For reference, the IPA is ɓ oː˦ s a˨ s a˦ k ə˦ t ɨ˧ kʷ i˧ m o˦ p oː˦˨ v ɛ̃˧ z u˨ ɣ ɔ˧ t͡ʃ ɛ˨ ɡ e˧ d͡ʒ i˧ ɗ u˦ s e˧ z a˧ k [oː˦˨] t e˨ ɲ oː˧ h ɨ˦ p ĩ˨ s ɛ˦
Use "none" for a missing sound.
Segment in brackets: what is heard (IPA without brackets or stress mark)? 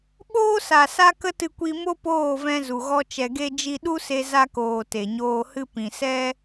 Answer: oː˨